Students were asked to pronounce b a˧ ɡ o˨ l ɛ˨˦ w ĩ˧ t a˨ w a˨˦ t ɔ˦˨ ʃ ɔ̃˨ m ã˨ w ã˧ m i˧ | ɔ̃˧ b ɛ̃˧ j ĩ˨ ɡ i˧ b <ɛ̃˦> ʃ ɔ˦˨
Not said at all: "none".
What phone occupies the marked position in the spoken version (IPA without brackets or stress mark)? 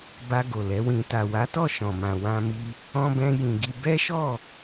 ɛ˦